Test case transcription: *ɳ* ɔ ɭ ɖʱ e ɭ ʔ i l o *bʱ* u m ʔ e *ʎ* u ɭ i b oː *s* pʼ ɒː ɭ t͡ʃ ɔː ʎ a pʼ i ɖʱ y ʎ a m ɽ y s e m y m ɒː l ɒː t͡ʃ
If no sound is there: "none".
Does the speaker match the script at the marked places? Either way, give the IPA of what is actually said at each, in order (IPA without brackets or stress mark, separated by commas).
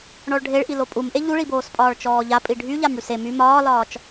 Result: ɳ, pʼ, ʎ, s